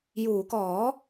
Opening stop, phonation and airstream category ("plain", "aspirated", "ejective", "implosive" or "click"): plain